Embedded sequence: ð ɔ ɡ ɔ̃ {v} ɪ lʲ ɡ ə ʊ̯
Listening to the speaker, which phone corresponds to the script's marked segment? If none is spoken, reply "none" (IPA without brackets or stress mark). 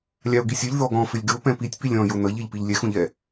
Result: f